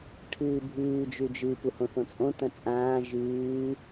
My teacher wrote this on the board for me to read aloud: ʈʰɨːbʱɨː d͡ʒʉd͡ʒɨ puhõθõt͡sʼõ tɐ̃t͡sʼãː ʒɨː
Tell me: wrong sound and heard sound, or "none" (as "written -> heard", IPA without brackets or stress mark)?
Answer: none